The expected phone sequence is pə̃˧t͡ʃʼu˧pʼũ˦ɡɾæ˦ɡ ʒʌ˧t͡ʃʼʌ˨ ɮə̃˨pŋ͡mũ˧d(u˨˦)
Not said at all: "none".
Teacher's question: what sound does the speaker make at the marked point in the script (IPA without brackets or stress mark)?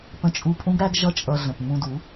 u˨˦